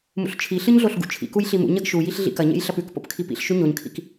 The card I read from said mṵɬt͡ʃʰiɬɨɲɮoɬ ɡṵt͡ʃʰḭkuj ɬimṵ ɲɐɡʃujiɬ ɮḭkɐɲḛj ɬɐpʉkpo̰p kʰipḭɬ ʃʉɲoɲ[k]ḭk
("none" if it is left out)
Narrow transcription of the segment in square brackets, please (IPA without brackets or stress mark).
kʰ